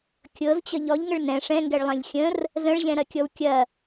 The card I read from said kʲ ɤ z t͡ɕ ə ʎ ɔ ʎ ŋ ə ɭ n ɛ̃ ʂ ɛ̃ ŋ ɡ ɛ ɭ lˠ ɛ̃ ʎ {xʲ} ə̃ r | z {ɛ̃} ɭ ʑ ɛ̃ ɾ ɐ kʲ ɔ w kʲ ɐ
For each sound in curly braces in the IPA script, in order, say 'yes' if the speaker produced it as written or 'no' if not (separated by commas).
yes, no